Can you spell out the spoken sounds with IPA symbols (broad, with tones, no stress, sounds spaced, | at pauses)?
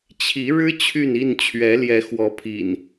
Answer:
t͡ɕʰ i˨˦ ɻ ɻ̩˦ t͡ɕʰ y˥˨ n i˥˨ n t͡ɕʰ ɥ ɛ˨˦ l j ɛ˨˦ x w ɔ˨˦ pʰ ḭ˨˩ n